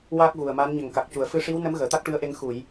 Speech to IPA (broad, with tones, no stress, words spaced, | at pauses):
waː˦˥k̚ɣu˨˩ə̯ma˧˥n ɲə˨˩ŋka˨˩k̚ cu˨˩˨ə̯ fɨ˧ʂi˧˥wnə˧˥m ɣəː˨˩˨t̪a˦˥k̚ʈɨ˧˥ə̯ʔe˧ŋ xu˨˩˨j